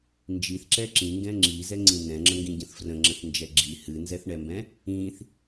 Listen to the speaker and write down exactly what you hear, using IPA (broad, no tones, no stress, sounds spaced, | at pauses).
n d͡ʒ i θ ǁ ɛ ǁ ĩ ŋ ɡ ɛ̃ ŋ͡ǁ i z ɛ ŋ͡ǀ ĩ n ɛ̃ ŋ͡ǁ ə̃ ŋ ɡ ĩ ɟ ə̃ θ f r ə̃ ŋ͡ǁ ə̃ θ n d͡ʒ ɛ ɡ͡ǁ i h ɨ n z ɛ θ ɳ ɛ m b ɛ̃ | ĩ θ